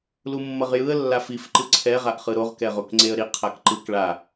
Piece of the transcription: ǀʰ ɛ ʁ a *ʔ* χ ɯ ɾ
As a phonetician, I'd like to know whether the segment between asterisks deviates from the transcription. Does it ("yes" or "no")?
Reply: no